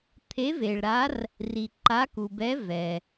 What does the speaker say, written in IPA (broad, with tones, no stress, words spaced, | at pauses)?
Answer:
t̪ʰe˧˥ve˨ɭɾa˧˥r | ri˨ǃa˧˥ku˨ bɛ˧˥ vɛ˨